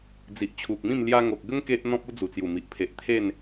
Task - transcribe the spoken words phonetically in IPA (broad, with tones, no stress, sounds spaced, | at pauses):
d͡z i˨ ʔ t͡ɕʰ u˨ k̚ m ĩ˥˧ m l j a˧ ŋ o˨ k̚ ɡ ə˦ ŋ k e˦ ʔ n̪ ɔ̃˦ p̚ u˦ d͡z u˨˩ t͡s j u˨˩ m i˨ ʔ pʰ e˨ ʔ t̪ʰ e˥˧ n